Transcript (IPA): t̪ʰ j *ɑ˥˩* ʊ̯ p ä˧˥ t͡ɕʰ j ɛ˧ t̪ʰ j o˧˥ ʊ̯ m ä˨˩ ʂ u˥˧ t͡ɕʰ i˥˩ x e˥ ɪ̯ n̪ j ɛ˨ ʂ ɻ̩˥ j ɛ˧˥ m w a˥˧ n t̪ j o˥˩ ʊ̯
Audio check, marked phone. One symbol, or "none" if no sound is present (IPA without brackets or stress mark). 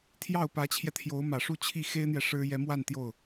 ɑ˥˩